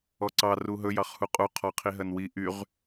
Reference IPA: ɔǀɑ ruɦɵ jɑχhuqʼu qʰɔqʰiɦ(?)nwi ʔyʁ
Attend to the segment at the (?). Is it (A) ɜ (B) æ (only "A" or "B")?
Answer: A